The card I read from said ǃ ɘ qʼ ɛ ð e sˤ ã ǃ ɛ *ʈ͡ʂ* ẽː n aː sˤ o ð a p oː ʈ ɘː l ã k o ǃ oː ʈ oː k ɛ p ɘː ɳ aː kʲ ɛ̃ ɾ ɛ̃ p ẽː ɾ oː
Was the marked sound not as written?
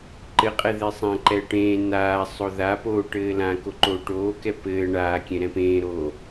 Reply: yes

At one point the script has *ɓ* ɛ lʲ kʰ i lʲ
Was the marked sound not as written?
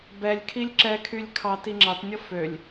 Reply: yes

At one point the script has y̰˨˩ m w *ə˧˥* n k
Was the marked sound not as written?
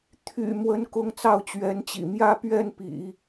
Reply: no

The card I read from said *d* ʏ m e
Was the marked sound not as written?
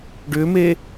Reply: yes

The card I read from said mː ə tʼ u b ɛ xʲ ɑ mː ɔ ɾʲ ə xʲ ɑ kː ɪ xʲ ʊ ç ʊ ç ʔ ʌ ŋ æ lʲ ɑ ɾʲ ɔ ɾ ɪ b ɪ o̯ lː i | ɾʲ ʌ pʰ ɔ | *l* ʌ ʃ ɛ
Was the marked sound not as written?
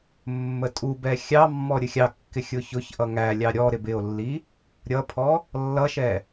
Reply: yes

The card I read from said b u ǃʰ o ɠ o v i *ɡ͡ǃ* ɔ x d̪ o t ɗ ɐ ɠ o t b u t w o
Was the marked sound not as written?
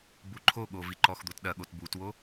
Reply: yes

